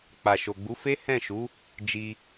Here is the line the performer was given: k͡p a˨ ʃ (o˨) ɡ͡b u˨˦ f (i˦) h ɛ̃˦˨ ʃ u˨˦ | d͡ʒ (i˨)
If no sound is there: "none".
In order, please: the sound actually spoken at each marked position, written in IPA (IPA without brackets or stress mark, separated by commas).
o˨, e˦, i˧